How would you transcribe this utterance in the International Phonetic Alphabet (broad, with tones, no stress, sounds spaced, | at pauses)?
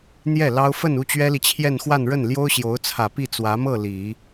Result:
n̪ j ɛ˥˩ l ɑ˥ ʊ̯ f ə˥˧ n u˥˩ t͡ɕ ɥ ɛ˥ l i˨ t͡ɕʰ j ɛ˥˧ n x w a˥˧ n ɻ ə˥˩ n l j o˥ ʊ̯ ɕ j o˧˥ ʊ̯ t͡sʰ ä˨˩ p i˥˩ t͡s w ä˧˥ m ɤ˥˩ l i˨˩˦